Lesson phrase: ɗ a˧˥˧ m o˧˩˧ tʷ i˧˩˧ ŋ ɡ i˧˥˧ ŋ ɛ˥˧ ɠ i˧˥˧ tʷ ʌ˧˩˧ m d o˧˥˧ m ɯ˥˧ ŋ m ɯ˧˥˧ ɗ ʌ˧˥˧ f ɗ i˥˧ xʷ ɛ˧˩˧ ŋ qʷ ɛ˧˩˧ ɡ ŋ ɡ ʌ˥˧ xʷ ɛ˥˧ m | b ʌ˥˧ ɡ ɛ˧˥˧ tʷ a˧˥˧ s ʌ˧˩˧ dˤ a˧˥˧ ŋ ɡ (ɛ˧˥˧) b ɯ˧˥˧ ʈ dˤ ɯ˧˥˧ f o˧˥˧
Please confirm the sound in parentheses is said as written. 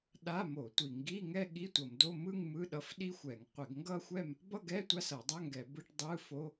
no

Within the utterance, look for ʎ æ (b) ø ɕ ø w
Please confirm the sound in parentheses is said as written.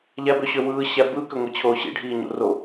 yes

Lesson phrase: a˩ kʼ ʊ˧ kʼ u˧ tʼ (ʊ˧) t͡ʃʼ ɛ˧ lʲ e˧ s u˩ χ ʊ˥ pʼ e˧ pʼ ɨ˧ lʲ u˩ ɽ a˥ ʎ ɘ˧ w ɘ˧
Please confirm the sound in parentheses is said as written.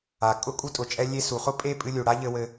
no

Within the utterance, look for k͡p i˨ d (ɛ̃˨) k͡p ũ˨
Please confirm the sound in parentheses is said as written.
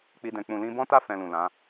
yes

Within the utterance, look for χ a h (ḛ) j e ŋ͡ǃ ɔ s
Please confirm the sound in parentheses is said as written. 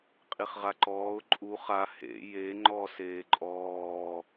yes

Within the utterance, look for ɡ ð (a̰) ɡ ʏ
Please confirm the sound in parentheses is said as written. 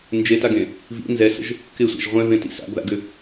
yes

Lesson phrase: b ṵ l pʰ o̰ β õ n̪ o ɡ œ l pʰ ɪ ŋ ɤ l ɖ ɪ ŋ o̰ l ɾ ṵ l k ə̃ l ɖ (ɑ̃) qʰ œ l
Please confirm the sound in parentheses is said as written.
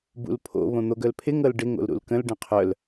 no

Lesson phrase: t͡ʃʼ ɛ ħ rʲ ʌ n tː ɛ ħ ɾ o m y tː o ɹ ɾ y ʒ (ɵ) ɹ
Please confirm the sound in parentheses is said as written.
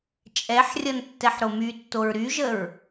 no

